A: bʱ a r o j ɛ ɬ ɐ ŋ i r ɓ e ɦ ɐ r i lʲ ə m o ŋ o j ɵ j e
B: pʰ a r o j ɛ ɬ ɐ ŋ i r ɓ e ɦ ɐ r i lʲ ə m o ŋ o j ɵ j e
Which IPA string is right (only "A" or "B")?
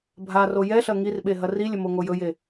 A